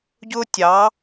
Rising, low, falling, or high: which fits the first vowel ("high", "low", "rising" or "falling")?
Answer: high